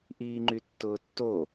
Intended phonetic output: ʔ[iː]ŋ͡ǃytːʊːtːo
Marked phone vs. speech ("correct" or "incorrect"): correct